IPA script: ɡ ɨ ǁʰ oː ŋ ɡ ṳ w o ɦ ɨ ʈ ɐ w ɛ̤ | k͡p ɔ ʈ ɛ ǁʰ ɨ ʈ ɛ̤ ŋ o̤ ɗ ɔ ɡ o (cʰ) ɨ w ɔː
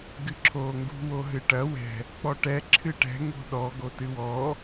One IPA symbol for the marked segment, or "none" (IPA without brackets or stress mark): t